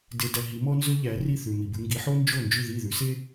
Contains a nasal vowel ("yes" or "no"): no